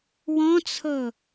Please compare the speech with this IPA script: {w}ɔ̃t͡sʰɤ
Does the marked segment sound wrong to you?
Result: no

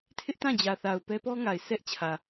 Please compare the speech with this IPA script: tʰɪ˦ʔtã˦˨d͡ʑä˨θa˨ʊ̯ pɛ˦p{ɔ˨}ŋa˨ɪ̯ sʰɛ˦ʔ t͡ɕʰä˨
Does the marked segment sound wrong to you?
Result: yes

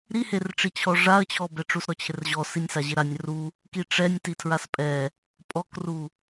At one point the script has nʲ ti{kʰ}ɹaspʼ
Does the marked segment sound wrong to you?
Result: yes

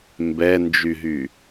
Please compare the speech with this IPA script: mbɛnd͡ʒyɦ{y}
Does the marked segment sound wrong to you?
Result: no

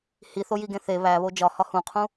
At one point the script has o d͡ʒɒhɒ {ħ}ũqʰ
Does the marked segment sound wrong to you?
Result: yes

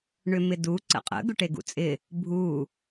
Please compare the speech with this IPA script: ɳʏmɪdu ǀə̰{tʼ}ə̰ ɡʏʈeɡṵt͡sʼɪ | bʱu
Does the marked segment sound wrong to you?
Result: yes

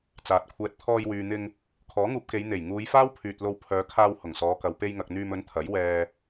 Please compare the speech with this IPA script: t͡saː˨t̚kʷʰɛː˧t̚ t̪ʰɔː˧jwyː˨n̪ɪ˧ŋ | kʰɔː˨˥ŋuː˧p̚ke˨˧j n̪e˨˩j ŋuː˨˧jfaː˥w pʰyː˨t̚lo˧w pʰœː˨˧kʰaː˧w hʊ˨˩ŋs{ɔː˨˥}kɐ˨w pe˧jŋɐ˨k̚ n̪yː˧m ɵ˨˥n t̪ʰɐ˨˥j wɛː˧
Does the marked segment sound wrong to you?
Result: yes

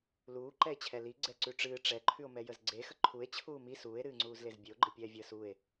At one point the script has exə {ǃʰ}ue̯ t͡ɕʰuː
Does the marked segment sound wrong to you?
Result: no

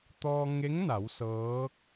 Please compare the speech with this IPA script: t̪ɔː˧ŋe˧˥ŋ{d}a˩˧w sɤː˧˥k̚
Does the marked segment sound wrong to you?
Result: yes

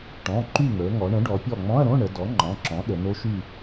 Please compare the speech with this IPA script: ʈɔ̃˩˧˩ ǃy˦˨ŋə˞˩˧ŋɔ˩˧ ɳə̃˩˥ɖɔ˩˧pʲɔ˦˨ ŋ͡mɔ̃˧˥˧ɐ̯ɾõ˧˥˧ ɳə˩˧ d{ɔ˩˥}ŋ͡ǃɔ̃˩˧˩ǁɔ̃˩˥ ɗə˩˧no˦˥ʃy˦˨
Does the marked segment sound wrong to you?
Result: no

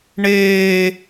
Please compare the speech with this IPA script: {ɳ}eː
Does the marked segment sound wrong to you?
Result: no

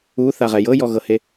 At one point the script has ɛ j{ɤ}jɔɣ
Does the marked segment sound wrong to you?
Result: no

